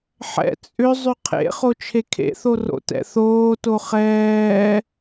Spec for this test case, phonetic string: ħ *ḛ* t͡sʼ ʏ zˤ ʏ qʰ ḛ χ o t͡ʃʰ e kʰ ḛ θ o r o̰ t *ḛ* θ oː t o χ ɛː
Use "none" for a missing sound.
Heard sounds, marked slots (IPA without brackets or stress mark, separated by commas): ɛ̰, ɛ̰